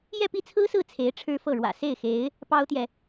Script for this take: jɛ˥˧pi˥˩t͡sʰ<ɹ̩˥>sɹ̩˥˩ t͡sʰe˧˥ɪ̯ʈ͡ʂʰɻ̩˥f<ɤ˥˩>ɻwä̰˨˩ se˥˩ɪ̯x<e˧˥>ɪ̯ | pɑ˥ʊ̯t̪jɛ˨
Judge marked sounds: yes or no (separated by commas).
yes, yes, yes